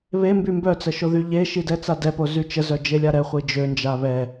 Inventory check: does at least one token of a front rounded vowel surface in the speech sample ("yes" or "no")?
yes